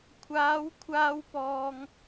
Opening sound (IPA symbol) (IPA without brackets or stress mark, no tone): kʷʰ